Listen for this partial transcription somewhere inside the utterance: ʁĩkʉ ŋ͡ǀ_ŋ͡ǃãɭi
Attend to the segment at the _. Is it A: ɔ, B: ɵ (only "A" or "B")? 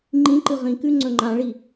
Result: B